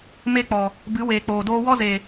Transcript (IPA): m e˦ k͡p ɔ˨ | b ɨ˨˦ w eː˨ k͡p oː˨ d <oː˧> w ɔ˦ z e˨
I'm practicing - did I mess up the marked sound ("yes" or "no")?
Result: no